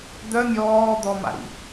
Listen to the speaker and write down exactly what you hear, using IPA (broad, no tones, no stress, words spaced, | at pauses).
d̪œ mʲɔːd̪ɔma̰ɾḭ